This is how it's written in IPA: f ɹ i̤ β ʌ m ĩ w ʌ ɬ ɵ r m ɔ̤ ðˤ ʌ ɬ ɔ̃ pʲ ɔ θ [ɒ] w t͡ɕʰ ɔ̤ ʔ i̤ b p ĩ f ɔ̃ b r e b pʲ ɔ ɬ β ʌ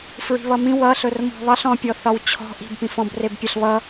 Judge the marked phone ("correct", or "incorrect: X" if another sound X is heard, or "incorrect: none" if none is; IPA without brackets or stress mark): correct